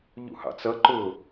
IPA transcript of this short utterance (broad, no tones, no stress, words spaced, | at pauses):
ʎṵhɑ̰t͡sʌ ǃʊ